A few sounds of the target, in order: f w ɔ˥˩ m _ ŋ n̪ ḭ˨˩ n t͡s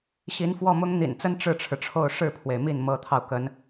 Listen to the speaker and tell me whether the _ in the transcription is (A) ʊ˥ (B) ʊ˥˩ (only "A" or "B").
A